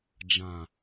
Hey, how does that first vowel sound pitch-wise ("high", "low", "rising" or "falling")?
low